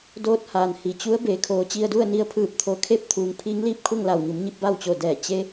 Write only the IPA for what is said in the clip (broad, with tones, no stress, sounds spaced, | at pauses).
d oː˧ t̚ h aː˩ n h i˩ t͡ɕ u˧˥ ə̯ b e˩˧ kʰ oː˩˧ t͡ɕ i˧ ə̯ d u˥˨ ə̯ n i˧˥ ə̯ pʰ ɯː˧˩ p̚ t̪ʰ o˧˩ kʰ e˥˨ p̚ t̪ʰ uː˩˧ ŋ pʰ iː˧˥ ŋ l iː˥˨ p̚ kʰ u˥˨ ŋ l a˩ w ɲ u˩˧ m ɲ i˧ p̚ b a˥˨ w t͡ɕ o˧˩ d ɛː˧˩ t͡ɕ e˧˥